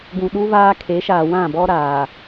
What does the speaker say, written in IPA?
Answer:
ɡ ũ˨ ɗ u˦ v aː˦ kʰ e˨˦ ʃ aː˨ w ã˦˨ b ɔ˦ ɾ aː˨

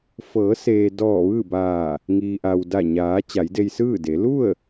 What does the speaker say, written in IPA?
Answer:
f ɤː˩˧ s eː˩ d ɔː˧˩ ʋ ɯː˥˨ b aː˧˩ | ŋ iː˩ ʔ a˩ w d a˧˩ ɲ aː˩˧ t͡ɕ a˩˧ j d e˧ j s ɯː˥˨ d e˩˧ l u˥˨ ə̯

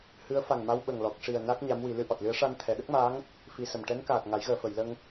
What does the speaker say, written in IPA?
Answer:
h ɨ˧˥ ə̯ f a˨˩ ŋ m a˧ w ɓ ə˨˩ ŋ l ɔ˨˩ k̚ ʂ i˨˩ ə̯ n a˦˥ k̚ ɲ a˧˥ m w i˨˩˦ l ɨ˨˩˦ ʔ ɔ˨˩ t̚ l ɨ˧˥ ə̯ ʂ a˧ n t̪ʰ ɛ˨˩˨ ɗ ə˦˥ k̚ m aː˧˥ ŋ | f i˧ s ə˨˩ m ʈ ɛ˧˥ n k aː˨˩ t̚ ŋ a˨˩˦ j ɣ əː˨˩˨ f ə˨˩˨ j l ə˧ ŋ

